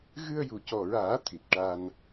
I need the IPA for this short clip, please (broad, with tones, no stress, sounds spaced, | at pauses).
ɣ ɨ˧ ə̯ j u˨˩ c ɔ˨˩ ɹ aː˨˩˦ t̪ʰ i˨˩ t̚ ʈ a˧ n